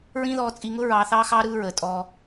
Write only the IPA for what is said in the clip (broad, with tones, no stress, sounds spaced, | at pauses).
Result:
ɹ ĩː˦ ð ɔː˧ t͡sʼ i˧ ŋ ʊ˦ ɹ ɑː˧ θ ɑː˦ x ɑː˦ ɾ ɯː˧ ɹ əː˨ tʼ ɔː˧